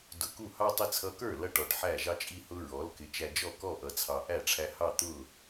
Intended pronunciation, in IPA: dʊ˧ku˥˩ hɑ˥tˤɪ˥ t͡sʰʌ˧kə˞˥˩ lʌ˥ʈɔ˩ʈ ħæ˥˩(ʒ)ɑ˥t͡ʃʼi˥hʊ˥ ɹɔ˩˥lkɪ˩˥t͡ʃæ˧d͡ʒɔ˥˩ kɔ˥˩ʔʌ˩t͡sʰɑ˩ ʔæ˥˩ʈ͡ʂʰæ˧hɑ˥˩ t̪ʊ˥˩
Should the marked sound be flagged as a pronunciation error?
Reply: no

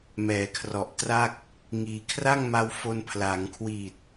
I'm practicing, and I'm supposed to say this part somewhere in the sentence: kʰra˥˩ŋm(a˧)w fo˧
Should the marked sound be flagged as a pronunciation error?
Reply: no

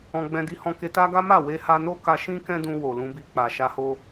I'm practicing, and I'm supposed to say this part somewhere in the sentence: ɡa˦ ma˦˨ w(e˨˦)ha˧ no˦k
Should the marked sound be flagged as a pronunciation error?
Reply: yes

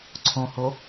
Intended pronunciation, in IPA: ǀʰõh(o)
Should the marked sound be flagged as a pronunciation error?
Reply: no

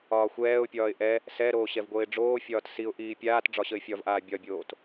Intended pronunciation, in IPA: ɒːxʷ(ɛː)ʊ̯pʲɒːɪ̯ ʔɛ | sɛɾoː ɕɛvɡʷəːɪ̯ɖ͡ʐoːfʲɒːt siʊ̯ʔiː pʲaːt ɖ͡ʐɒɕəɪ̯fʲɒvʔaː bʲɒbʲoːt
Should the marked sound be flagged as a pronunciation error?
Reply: no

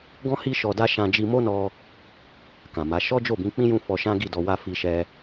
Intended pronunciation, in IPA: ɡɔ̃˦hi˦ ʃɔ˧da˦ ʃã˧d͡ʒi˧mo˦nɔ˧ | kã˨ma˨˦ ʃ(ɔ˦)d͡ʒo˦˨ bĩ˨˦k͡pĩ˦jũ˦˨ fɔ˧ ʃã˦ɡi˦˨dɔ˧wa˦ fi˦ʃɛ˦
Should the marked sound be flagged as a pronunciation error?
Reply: no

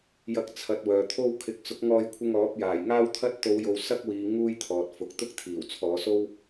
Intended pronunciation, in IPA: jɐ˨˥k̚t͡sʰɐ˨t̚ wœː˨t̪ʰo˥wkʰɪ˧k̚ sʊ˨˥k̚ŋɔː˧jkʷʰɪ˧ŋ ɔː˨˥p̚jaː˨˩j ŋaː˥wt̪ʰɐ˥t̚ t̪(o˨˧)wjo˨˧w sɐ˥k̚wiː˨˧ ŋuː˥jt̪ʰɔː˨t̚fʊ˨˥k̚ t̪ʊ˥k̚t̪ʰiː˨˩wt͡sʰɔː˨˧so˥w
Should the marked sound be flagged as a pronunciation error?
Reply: no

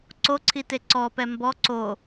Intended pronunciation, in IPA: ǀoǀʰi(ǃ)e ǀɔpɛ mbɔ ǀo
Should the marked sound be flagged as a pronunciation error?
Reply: yes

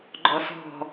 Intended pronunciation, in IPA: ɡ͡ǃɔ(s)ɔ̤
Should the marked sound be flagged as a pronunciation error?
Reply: no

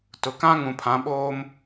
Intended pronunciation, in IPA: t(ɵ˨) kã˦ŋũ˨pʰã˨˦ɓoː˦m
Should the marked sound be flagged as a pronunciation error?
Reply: yes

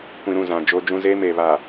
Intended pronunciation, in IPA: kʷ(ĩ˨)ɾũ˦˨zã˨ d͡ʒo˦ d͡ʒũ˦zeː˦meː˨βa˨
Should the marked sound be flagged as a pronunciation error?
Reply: no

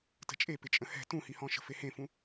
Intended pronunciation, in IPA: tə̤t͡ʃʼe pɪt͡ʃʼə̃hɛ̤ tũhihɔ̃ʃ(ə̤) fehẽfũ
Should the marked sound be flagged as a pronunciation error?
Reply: no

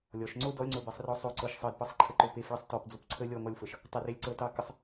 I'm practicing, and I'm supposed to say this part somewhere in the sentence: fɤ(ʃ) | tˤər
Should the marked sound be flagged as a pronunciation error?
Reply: no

